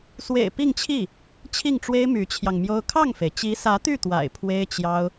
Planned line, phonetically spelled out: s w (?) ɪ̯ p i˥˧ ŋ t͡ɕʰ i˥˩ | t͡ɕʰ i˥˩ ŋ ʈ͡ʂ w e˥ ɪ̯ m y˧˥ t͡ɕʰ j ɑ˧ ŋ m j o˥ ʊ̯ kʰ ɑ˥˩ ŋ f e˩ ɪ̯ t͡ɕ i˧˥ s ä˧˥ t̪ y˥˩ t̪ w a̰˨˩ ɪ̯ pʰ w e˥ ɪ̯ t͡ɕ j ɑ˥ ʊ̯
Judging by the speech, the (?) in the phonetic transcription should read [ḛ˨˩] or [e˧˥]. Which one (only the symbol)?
ḛ˨˩